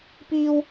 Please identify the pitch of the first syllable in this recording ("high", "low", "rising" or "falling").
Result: high